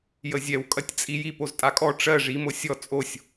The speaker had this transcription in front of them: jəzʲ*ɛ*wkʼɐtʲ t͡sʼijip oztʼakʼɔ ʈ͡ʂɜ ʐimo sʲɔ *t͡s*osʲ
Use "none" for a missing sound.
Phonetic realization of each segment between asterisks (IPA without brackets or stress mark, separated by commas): ɛ, t͡sʼ